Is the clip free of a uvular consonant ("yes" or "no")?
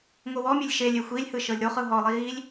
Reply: no